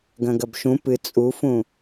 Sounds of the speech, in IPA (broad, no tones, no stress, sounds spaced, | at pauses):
ɡ ɐ̃ ɡ ɐ b ʃ ũ p ɨ t͡sʼ u f ũ